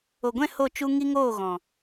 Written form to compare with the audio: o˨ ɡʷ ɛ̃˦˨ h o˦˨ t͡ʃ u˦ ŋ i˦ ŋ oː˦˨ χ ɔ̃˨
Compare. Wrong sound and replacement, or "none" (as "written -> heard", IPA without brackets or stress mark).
χ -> ɣ